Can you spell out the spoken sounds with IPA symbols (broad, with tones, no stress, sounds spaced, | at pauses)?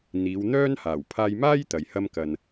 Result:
n̪ iː˨˧ w n̪ œː˥ n h aː˨˩ w pʰ aː˧ j m aː˥ j t̪ ɐ˨˧ j h ɐ˥ m k ɐ˧ n